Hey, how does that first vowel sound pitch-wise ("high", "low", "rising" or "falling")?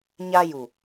high